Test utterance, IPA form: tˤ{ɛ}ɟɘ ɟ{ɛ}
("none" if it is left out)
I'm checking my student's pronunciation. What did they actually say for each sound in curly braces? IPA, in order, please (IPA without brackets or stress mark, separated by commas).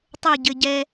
ɘ, ɛ